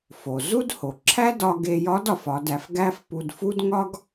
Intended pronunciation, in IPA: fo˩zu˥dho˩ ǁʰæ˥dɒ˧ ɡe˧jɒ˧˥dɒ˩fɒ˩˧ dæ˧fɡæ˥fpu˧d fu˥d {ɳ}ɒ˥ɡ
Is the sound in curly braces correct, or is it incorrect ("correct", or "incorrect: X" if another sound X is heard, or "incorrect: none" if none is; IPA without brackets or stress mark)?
incorrect: ŋ